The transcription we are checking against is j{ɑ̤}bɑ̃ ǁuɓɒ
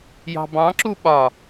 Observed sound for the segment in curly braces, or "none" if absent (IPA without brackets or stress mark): ɑ̤